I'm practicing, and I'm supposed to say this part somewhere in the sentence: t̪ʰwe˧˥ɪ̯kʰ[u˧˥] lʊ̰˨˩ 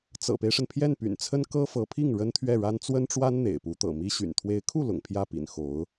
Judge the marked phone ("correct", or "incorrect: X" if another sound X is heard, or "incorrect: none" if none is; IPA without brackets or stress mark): incorrect: u˥˩